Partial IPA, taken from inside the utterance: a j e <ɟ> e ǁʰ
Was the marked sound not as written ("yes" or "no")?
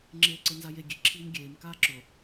yes